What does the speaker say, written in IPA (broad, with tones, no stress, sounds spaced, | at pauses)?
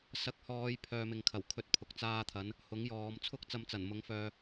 s ɐ˨˥ k̚ h ɔː˨˧ j pʰ œː˧ m ɪ˨ ŋ kʰ ɐ˨˩ w kʰ ɵ˧ t̚ pʰ ʊ˨ k̚ t͡s aː˥ t̪ʰ ɐ˨˥ n | h ʊ˨˥ ŋ j ɔː˨˧ m t͡sʰ ʊ˥ k̚ t͡s ɐ˧ m t͡s ɐ˨˩ n m ʊ˨˥ ŋ f œː˨